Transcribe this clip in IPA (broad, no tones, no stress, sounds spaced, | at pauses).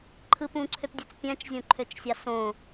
ǃʰ ɯ p ũ ǀʰ ø p dʲ ø t͡s pʲ æ̃ t͡ʃ zʲ õ ǃʰ ø t͡ʃ sʲ ɑ s õ